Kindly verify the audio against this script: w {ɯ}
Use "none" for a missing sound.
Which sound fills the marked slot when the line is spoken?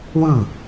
ɯ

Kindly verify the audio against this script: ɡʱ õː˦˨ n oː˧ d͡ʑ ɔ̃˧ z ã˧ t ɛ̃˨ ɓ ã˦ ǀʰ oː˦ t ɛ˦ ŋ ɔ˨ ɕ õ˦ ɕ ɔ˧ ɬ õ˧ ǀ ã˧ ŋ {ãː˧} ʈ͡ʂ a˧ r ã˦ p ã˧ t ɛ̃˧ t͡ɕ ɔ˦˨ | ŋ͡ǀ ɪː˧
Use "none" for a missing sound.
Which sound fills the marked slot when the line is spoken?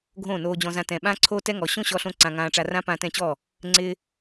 ãː˧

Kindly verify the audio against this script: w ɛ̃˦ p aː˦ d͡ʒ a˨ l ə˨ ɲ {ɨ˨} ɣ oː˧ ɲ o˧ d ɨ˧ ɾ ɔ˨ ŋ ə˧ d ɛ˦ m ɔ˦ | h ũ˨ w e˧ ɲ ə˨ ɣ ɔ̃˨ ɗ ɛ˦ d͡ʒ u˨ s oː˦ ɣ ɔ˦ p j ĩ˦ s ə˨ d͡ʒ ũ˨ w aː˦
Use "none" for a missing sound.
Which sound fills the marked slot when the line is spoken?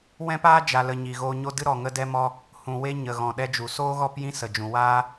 i˨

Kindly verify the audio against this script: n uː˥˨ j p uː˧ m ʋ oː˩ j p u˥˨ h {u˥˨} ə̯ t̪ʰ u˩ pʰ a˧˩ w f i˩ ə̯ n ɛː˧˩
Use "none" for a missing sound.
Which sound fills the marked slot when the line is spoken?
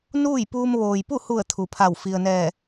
u˧˩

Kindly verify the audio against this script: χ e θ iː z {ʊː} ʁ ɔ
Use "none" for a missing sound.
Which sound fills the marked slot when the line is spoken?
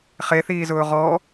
ʊː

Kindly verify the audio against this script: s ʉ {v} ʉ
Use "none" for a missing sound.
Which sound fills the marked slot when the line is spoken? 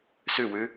w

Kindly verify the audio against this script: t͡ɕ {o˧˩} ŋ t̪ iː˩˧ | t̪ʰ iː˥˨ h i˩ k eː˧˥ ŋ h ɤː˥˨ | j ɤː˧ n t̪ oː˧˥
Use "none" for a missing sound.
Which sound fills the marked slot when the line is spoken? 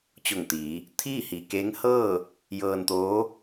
o˧˩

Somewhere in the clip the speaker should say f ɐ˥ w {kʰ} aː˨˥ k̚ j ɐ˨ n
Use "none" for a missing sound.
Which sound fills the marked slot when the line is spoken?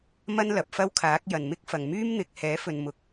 kʰ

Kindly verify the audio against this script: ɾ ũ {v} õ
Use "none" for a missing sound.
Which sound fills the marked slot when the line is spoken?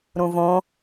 v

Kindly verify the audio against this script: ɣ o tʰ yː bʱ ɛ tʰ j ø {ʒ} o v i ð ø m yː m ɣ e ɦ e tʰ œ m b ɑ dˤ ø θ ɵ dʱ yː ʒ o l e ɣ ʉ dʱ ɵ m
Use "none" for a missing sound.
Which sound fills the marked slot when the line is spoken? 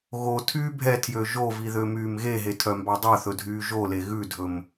ʒ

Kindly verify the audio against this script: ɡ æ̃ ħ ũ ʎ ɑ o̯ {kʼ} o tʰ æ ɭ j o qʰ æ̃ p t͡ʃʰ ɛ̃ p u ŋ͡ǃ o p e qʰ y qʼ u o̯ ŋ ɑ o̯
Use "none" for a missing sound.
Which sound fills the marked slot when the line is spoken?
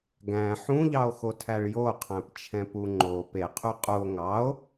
x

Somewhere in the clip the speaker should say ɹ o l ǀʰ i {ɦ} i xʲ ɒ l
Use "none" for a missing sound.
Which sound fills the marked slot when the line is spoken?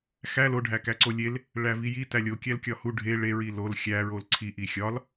ʔ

